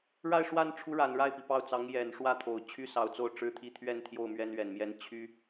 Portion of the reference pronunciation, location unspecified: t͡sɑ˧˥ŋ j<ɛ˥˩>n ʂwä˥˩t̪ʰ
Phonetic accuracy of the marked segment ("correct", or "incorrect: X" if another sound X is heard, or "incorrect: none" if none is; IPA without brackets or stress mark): incorrect: ɛ˨˩